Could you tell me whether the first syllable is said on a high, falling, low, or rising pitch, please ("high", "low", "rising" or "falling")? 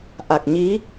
low